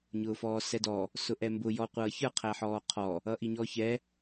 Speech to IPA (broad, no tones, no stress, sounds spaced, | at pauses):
ɲ ʊː f ɔː s ɛ d ɔː | s ʊ ʔ ɛ m b ʊ j ɔ qʷ ʌː ç ə˞ qʰ æ ħ ɔː qʰ ɔ | ʌ ʔ i ɲ ɔː ç ɛ